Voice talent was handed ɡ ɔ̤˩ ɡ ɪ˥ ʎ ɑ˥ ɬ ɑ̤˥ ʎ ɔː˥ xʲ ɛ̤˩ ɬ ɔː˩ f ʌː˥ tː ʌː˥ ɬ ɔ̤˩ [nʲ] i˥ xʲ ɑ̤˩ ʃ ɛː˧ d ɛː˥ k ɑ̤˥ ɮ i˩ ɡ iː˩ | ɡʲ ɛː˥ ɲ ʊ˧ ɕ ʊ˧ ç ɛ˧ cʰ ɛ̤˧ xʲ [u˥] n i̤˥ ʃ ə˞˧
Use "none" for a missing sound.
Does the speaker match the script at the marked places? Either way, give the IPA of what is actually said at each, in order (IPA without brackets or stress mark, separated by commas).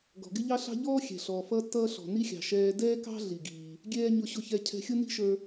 n, ʊ˥